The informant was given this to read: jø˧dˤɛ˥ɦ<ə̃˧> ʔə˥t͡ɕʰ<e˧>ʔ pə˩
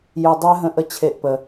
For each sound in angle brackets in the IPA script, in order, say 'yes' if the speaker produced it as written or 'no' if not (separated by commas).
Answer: yes, yes